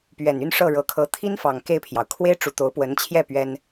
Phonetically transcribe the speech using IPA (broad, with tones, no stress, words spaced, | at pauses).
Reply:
pɥɛ˨˩ny˥˧n ʂɤ˥˩ɻɤ˧˥kʰɤ˧˥ t̪ʰi˥nfɑ˨˩ŋ ke˥˩ɪ̯pʰjɑ˩ʊ̯ kʰwe˥ɪ̯ʈ͡ʂu˨˩t̪o˧˥ʊ̯pwə˧˥n t͡ɕʰjɛ˥˩ pɥɛ˥n